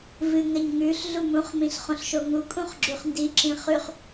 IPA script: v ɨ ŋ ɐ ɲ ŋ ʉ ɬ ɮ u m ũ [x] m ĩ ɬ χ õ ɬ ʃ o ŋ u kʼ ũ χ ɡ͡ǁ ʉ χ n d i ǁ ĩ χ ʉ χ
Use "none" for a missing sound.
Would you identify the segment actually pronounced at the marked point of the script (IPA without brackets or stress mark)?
χ